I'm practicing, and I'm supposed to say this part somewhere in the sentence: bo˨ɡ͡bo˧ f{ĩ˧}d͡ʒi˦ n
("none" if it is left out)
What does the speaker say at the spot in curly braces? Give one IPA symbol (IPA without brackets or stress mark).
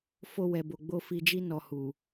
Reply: i˧